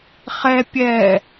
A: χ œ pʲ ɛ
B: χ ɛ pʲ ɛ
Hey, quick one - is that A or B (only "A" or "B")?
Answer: B